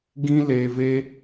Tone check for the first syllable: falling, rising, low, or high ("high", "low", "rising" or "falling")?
high